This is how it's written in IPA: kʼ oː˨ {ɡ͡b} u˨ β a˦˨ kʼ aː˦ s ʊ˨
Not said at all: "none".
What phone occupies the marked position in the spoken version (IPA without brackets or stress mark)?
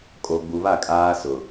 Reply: ɡ͡b